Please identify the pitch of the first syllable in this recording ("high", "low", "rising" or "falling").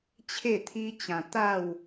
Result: falling